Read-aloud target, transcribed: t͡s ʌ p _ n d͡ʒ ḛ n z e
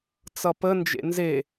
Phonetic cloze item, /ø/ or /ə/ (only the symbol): ə